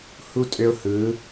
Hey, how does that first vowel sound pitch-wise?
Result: high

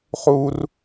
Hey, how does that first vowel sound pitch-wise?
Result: high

